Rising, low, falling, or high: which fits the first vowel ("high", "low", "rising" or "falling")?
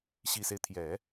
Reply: low